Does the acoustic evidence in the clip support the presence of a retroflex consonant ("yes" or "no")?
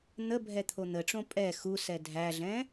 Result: yes